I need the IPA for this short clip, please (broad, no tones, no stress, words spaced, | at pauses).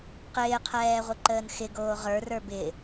qɪːqʰɛːʁʷɪǃəːn xɪɡoː ʁə˞rə˞ bɪ